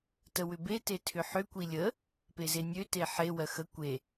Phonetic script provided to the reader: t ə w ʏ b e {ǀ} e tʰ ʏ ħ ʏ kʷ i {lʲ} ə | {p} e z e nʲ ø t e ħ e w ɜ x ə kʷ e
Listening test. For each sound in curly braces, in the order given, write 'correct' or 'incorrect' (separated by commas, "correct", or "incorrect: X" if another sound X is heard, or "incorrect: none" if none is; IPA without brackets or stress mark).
incorrect: t, correct, correct